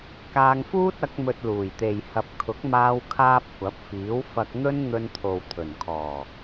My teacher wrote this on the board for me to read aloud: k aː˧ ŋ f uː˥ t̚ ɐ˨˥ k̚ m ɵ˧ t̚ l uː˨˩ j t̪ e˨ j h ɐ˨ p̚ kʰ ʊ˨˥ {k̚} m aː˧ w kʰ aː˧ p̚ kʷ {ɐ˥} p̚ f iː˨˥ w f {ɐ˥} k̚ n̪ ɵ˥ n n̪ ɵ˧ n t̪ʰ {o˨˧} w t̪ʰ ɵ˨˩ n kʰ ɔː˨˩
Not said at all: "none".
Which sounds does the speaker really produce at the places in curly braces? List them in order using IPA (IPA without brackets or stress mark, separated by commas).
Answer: k̚, ɐ˨˥, ɐ˧, o˨